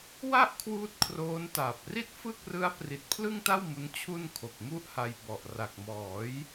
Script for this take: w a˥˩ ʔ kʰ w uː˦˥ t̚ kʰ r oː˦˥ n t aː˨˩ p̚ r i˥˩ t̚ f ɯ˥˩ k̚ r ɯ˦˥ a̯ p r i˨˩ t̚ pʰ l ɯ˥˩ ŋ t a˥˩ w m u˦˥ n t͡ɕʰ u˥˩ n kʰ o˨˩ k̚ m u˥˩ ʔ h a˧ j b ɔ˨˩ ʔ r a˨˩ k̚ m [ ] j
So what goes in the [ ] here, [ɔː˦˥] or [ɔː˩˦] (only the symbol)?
ɔː˩˦